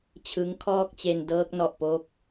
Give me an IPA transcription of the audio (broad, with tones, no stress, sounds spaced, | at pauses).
t͡ɕʰ ɯ˦˥ ŋ kʰ ɔː˥˩ k̚ t͡ɕ e˧ n d ɤː˦˥ k̚ n ɔ˨˩ ʔ p o˦˥ k̚